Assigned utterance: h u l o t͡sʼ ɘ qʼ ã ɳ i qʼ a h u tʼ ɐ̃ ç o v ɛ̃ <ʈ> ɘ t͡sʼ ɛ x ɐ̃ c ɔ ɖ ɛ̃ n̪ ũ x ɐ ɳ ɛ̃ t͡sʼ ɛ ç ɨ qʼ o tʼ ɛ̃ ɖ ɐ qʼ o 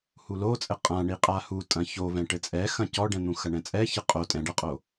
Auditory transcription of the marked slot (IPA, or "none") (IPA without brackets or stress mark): ʈ